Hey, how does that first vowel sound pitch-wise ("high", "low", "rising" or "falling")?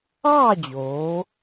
falling